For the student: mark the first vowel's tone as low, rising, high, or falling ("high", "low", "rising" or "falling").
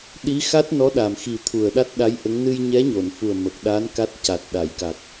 rising